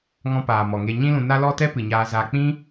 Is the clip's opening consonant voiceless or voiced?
voiced